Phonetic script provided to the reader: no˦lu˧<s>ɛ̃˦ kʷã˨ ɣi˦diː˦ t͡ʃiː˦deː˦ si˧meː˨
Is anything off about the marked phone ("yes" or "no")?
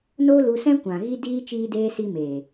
no